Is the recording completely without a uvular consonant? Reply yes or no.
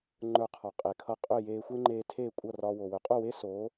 no